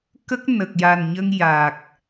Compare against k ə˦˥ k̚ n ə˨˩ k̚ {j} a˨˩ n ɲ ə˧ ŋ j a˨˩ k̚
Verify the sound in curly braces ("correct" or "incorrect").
correct